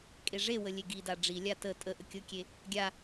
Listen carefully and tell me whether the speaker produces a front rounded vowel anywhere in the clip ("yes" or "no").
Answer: no